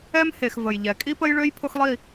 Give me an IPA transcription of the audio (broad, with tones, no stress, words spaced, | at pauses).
ɛ˦mhe˨x və˨jʎɛ˨ kʼi˦pə˦jɭø˦j pʰʊ˦xlˠi˦˨